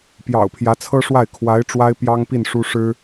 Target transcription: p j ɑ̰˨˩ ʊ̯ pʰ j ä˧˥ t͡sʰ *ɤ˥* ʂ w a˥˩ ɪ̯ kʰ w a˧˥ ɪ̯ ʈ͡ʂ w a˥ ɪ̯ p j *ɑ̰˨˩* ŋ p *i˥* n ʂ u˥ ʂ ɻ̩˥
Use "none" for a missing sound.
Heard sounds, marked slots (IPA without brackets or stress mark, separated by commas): ɤ˥, ɑ˥, i˥˩